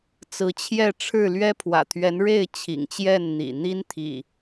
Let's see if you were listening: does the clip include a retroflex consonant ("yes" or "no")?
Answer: yes